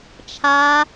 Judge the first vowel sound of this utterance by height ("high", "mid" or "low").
low